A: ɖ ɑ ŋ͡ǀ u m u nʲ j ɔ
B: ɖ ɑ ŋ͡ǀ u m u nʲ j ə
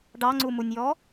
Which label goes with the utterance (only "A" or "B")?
A